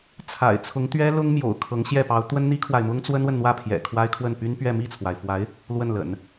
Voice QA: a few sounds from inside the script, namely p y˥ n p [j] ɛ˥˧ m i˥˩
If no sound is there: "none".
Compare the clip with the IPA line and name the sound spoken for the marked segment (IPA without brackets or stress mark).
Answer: ɥ